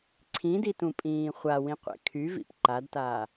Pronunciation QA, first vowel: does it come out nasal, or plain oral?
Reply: nasal